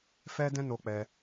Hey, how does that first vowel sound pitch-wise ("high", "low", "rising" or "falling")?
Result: high